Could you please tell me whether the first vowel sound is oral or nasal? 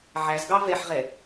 oral